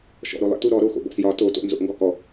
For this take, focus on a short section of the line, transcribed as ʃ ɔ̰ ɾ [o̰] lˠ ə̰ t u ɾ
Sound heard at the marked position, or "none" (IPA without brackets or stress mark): o